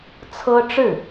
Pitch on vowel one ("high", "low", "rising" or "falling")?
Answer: high